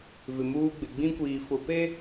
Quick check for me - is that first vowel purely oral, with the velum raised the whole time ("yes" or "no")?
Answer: yes